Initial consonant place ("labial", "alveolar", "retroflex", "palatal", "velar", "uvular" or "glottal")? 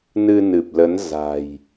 alveolar